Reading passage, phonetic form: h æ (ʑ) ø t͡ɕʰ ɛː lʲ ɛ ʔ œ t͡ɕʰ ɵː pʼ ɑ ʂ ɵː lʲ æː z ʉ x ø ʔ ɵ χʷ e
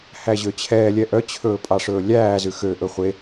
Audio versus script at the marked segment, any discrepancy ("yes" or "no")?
no